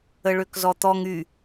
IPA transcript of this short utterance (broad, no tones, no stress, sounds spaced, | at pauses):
ə ɭ ø k z ɔ t̪ ɔ ŋ y